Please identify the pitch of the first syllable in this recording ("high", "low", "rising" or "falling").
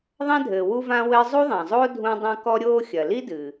high